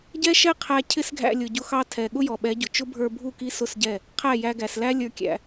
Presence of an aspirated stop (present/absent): present